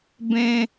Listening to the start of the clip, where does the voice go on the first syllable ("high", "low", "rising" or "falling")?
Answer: high